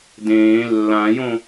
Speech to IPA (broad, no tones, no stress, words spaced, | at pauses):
dẽː lːãjõ